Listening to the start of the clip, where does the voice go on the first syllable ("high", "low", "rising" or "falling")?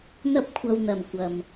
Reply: high